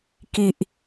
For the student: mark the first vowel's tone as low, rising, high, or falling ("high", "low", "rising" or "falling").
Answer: low